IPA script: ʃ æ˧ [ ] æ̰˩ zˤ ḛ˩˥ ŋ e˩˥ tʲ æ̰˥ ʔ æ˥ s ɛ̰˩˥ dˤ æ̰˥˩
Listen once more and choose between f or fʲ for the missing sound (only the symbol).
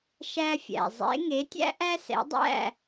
fʲ